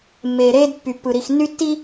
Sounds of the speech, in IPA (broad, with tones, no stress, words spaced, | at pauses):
mːeː˨ɾeː˦dpːy˨pːɯ˨ ɾi˨xnːy˦tːi˦